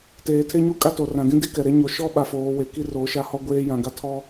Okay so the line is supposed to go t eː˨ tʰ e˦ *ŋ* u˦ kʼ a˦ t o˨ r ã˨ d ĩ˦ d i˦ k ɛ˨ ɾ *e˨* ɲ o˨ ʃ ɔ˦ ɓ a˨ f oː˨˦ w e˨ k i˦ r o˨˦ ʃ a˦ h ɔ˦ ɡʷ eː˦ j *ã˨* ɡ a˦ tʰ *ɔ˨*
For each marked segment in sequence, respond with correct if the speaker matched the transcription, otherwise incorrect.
incorrect: ɲ, incorrect: e˦, correct, incorrect: ɔ˦

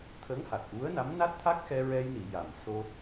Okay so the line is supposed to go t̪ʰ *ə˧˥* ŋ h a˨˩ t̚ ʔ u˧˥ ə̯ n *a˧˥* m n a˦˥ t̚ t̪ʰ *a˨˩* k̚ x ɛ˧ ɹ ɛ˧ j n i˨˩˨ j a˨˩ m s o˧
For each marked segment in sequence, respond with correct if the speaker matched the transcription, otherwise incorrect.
correct, correct, incorrect: a˦˥

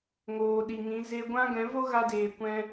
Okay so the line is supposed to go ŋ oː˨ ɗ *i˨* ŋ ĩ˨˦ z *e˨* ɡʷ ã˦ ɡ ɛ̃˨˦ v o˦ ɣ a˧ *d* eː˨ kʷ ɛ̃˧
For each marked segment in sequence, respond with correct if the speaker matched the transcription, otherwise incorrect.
correct, incorrect: e˧, correct

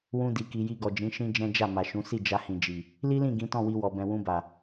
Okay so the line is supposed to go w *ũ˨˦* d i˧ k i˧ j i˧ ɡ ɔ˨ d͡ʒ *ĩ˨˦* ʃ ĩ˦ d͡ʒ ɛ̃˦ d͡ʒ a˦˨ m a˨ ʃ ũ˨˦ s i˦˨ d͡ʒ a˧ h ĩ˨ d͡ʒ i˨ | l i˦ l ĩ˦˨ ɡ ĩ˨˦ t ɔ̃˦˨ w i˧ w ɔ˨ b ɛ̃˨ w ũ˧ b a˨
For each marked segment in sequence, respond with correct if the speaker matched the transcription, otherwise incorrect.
incorrect: ũ˦, correct

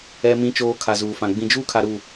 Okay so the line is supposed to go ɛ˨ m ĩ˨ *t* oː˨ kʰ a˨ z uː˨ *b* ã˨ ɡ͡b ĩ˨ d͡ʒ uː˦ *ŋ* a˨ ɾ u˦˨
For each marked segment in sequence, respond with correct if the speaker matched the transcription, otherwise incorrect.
incorrect: t͡ʃ, incorrect: f, incorrect: kʰ

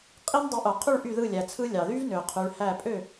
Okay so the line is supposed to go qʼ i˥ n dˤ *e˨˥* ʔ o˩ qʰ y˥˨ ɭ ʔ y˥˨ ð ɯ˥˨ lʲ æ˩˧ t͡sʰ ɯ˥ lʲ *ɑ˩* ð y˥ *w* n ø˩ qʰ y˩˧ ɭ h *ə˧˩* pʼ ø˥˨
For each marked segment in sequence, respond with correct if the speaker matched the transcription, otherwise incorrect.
correct, correct, incorrect: v, incorrect: æ˧˩

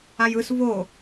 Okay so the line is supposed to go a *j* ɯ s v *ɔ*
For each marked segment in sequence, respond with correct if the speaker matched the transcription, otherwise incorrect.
correct, incorrect: o

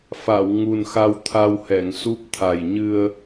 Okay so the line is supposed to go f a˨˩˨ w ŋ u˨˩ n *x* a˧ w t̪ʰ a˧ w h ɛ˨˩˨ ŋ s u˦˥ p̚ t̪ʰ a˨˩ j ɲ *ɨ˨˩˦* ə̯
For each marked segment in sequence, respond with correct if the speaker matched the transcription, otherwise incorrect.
correct, incorrect: ɨ˧

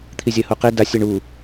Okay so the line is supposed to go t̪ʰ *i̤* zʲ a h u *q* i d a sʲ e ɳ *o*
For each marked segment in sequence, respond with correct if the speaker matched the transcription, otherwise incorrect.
incorrect: i, correct, incorrect: u

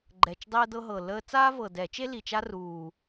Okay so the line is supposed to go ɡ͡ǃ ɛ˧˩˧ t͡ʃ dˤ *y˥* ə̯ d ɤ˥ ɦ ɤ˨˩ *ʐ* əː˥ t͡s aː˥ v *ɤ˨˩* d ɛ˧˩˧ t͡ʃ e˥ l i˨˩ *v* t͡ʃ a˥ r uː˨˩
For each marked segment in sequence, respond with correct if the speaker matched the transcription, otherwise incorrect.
incorrect: e˥, incorrect: l, correct, incorrect: none

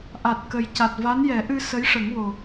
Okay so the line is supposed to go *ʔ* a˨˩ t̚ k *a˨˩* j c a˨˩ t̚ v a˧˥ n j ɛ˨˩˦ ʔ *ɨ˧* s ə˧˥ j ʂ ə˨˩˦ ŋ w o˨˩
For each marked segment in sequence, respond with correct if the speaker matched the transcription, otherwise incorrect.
correct, incorrect: ə˨˩, correct

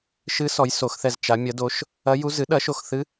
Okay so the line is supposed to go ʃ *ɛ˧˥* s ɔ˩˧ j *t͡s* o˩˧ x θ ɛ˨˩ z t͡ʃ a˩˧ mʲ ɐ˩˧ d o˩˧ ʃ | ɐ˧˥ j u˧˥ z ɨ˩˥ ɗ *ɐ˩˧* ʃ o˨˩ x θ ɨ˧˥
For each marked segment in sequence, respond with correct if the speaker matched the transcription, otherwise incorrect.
incorrect: ɨ˧˥, incorrect: s, incorrect: ɐ˩˥

